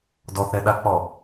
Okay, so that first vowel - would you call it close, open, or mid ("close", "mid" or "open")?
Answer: mid